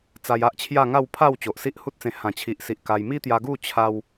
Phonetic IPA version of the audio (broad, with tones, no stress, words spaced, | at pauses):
t͡sa˧ja˦ʔt͡ɕʰja˥˧ŋa˥˧w pʰa˥˧w t͡ɕo˨ʔsi˦ʔhu˦t̚t͡sẽ˧ hã˨˩t͡ɕʰi˨ʔsi˨ʔ ka˧j mi˦t̪ja˧ɡu˥˧ t͡ɕʰa˧w